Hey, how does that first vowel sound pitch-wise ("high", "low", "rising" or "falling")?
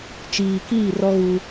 low